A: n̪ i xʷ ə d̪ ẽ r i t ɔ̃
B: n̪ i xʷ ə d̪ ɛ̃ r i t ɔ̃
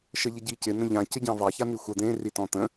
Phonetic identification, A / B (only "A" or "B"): A